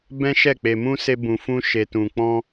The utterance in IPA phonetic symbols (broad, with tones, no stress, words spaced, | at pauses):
bɛ̃˦ʃɛ˦˨k͡pe˧mũ˦ se˦bũ˧fũ˦ ʃe˧tũ˧ k͡pɔ̃˦